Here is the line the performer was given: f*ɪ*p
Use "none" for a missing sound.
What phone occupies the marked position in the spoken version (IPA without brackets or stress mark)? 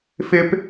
ɪ